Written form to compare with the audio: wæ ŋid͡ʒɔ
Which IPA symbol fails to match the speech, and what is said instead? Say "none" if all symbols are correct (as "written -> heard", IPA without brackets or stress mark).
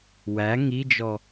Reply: none